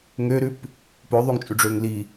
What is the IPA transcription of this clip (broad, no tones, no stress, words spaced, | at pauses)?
ŋøɾʉp | pøðˤyŋt͡ʃʼʉɖ͡ʐøŋ li